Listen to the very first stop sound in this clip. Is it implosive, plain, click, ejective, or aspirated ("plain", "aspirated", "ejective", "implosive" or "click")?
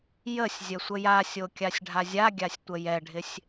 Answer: plain